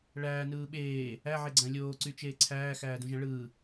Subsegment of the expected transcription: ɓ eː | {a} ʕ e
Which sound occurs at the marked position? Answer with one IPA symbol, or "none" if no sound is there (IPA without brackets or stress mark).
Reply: æ